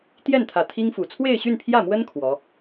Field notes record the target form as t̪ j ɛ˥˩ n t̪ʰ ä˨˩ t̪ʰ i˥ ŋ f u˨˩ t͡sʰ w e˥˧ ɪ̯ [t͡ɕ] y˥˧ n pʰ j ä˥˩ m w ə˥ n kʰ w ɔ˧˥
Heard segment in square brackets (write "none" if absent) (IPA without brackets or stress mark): ɕ